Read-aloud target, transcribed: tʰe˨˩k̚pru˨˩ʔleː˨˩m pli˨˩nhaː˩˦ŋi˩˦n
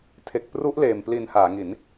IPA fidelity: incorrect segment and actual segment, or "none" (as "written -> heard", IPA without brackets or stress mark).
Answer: u˨˩ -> u˦˥